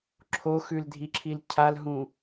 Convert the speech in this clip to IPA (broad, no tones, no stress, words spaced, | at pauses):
ǁʰoxʉldʱiǁʰil cʰalɦũ